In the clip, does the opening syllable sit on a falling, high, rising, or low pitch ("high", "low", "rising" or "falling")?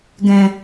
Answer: low